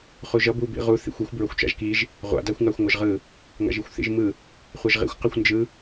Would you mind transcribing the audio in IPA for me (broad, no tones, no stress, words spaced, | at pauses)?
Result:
χuʒʌ bu bḭʁu θḭxʷixʷ bɹʌxʷt͡ʃa̰ʒkiʒ | ʁʷa̰ daxʷŋaxʷŋʷʌʒʁɯ | ŋa̰ʒixʷθḭʒmɯ | χʷaʒʁḭxʷ qɯxʷnd͡ʒɯ